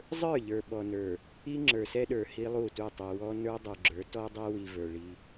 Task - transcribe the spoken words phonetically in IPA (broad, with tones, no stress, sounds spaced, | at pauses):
zˤ ə˞˦˨ ʎ ə˞˨ ɓ ɔ˨ n ə˞˨ | i˦ ŋ͡ǁ ə˞˨ s ɛ˦ ɗ ə˞˨ h i˦ lˠ u˦˨ t u˦˨ tˤ i˨ w ɔ˦ n ə˞˦ dˤ u˨ ɡ͡ǁ ə˞˨˦ t ɔ˦ dˤ ɛ˦ w i˨ v ə˞˨ ɭ i˦